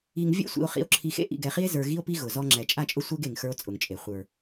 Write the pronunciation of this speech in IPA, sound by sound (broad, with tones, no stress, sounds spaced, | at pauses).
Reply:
i˨ ŋ vʲ ḛ˦ sʷ ḭ˨ o̯ χ ḭ˨ o̯ ǁʰ i˨ x ḛ˦ ʔ ḭ˨ ɡ ɛ˨ χ i˦ e̯ z ə˞˨ ɣ i˦ o̯ p i˦ ɣ ʊ˨ z ɔ˦ ŋ͡ǁ ɛ˨ t͡ʃʼ a˦ t͡ʃʼ ʊ˦ sʷ e˦ ɡ e˨ ŋ x ə˞˦ o̯ t͡sʼ ʊ˨ ŋ t͡ʃʼ e˨ χʷ ə˞˨